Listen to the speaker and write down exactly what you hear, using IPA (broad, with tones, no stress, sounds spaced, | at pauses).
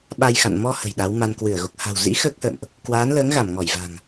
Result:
ɓ a˧ j x a̰˧˨ n m ɔ˧ h ə̤˨˩ j ɗ a˨˦ w m a˧ n k w ɨ˧˩ ə̯ ɣ o˨˩ k̚ h a̤˨˩ w z ḭ˧˥ x əː˦˥ k̚ h ə̰ː˧˨ m ʔ | k w aː˨˦ n l əː˨˦ ŋ ɣ a˧˩ m ŋ ɔ˧˩ j v a̤˨˩ ŋ